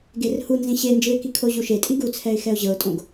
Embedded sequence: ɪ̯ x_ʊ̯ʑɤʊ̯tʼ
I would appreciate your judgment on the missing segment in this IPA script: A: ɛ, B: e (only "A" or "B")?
A